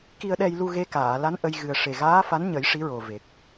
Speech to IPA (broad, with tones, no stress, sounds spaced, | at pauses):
k i˧ ə̯ ɗ ɛ˧ j l u˧ ɣ e˧˥ k aː˨˩˨ l a˧˥ n ʔ ə˧ j ɣ ɨ˨˩ ə̯ ʂ e˨˩ ɣ aː˧˥ f a˧˥ n ɲ ə˨˩˦ j ʂ i˧˥ ɹ o˨˩ v e˨˩ k̚